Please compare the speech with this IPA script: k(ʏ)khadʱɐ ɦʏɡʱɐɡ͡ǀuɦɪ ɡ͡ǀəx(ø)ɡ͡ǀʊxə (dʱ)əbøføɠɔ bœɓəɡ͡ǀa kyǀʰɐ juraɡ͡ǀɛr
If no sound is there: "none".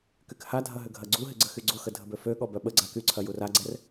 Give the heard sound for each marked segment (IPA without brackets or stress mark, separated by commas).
y, y, dʱ